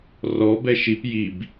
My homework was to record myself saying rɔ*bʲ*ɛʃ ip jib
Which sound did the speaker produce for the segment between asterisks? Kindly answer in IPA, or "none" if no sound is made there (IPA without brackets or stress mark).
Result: b